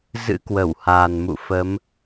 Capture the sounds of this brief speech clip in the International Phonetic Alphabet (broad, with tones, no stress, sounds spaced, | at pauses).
z ɨ̰˧˥ k w ə˧˩ w h aː˨˩ n m ṵ˧˨ f ə˨˦ m